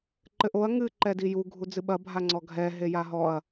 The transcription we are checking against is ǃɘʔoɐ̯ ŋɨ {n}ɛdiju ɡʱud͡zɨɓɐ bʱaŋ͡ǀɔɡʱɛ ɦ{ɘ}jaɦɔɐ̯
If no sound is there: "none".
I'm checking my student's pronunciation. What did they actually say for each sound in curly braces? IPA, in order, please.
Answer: ǃ, e

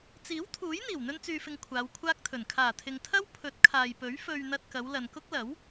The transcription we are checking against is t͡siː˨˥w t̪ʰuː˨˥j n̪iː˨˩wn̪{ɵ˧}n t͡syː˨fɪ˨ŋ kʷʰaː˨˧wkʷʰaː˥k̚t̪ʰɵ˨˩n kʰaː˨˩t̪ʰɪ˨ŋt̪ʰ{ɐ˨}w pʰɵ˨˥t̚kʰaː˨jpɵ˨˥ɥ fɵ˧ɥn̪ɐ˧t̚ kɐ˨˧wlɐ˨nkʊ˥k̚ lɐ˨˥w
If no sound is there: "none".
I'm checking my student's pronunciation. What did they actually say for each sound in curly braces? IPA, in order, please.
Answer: ɵ˧, ɐ˥

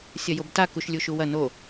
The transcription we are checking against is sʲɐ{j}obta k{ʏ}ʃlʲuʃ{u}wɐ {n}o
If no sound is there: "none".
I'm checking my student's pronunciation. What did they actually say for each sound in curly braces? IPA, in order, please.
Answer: j, u, u, n

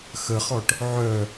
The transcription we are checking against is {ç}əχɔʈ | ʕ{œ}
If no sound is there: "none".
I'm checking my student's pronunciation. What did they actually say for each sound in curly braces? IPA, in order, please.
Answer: x, œ

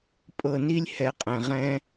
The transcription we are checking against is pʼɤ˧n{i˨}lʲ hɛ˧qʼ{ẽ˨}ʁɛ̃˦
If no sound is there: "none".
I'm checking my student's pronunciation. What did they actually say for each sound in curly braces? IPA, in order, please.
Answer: i˦, ɛ̃˨

